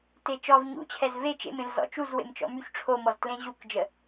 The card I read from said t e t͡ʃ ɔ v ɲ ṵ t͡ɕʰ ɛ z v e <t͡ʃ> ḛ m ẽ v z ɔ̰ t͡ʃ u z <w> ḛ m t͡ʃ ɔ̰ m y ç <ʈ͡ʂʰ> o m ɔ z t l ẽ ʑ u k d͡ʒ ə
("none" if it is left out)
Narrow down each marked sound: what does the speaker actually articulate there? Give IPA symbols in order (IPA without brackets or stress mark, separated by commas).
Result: t͡ʃ, w, ʈ͡ʂʰ